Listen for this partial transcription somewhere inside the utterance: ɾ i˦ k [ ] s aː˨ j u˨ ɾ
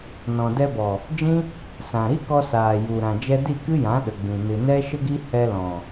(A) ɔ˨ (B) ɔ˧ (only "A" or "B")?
B